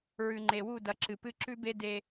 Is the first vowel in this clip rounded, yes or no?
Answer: yes